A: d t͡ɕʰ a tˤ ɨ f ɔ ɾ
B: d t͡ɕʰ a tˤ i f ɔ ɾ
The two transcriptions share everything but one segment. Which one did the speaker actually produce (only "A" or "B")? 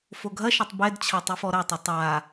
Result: A